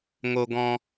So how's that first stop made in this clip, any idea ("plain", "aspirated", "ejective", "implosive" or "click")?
plain